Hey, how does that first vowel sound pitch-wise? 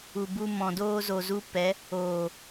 low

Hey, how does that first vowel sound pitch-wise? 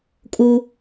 high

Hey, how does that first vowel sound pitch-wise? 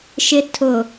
rising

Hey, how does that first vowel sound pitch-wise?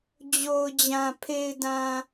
low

